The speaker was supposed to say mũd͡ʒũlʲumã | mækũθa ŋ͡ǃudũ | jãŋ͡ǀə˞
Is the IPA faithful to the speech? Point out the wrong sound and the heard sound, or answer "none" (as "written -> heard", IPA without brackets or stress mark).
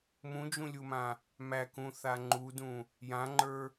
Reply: ŋ͡ǀ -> ŋ͡ǃ